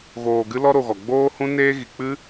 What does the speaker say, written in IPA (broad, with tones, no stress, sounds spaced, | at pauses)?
ɣ oː˧ ɡ ɨ˦ l ɔ˦ ɾ o˧ ɣ ɔ˨ ɡ͡b oː˦ h ũ˦ n eː˦ ɣ i˨ k͡p ɨ˦